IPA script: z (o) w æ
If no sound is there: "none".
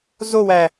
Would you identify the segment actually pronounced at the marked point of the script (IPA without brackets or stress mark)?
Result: o